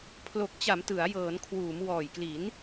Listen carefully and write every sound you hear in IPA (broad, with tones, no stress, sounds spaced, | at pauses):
pʰ l o˨˩ k̚ t͡ɕ a˩˦ m t ɯ˩˦ a̯ j ɤː˩˦ n kʰ w uː˩˦ m w ɔː˨˩ j k l i˩˦ n